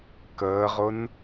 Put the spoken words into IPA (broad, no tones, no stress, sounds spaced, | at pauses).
k əː ʁ ʊ n